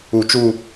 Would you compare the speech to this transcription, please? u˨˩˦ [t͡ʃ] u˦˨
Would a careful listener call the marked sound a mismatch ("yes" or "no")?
no